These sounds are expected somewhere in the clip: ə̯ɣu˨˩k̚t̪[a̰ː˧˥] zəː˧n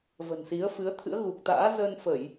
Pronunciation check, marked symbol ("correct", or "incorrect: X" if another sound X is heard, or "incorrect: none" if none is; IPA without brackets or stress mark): correct